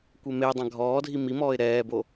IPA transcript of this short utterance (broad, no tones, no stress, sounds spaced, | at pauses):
kʷ e m e dˤ ã ɡʱ ɔː dʱ i m i m ɔː ɪ̯ ɾ ɛː b o